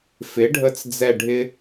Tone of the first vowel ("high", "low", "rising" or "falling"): rising